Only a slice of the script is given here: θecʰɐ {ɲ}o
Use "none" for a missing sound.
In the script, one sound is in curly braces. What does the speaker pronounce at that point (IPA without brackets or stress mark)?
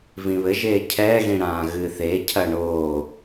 ɳ